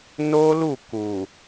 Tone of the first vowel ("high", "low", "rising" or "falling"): high